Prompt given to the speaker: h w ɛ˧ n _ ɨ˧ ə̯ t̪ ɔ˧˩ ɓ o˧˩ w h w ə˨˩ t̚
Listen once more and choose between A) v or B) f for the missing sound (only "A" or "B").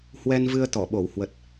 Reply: A